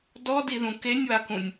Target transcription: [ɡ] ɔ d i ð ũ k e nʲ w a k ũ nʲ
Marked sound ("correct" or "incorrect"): incorrect